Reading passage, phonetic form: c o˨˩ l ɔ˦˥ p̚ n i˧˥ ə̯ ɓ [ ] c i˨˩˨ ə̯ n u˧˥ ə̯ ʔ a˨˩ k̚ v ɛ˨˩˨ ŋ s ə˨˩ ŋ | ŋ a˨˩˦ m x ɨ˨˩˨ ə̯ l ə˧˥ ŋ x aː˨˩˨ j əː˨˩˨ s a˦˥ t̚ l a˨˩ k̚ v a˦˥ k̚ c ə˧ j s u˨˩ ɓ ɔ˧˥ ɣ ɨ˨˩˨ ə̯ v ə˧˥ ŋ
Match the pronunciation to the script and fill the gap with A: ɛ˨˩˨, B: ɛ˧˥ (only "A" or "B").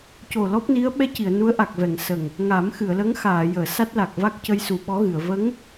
B